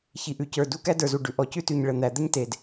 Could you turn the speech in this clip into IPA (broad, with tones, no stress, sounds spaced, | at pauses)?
ç i˩ ʔ ʉ˩ c ə˞˩ d u˥ k æ˥ d ə˞˩ z u˩ ɖ ʉ˩ ʔ ɔ˩ c ʉ˥ t ʉ˩ ɲ ɭ ə˩ n̪ æ˩ d̪ ə˥ ɲ t e˩ d